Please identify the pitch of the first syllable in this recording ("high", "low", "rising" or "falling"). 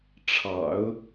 low